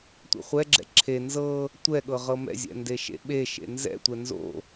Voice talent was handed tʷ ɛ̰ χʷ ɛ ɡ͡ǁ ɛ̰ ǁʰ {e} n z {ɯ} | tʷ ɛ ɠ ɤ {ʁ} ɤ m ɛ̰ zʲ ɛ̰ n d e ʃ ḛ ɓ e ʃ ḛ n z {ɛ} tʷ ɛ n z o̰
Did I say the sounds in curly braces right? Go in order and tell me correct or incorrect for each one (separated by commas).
correct, incorrect, correct, incorrect